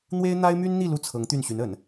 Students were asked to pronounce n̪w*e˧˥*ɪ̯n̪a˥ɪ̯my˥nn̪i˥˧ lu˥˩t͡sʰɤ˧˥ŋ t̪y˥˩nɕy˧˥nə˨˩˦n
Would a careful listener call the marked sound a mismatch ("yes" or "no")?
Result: yes